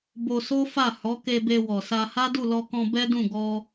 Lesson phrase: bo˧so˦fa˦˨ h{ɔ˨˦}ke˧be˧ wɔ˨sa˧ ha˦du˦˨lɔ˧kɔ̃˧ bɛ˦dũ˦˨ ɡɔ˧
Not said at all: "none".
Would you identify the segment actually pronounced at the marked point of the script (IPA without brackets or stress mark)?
ɔ˨˦